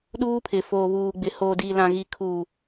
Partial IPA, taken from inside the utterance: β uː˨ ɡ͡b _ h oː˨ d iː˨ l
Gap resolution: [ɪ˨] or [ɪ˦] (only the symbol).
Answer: ɪ˨